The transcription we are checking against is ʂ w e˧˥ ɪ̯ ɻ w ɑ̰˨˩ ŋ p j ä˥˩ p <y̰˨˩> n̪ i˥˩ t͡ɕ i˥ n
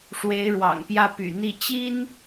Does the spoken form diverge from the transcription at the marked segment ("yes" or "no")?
no